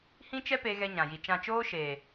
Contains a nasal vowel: yes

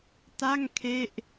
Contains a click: no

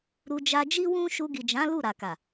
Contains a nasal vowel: yes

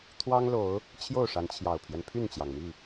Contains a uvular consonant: no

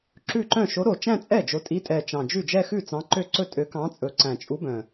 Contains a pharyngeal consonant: no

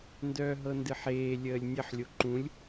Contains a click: yes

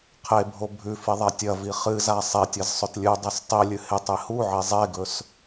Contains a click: no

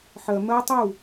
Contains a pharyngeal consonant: yes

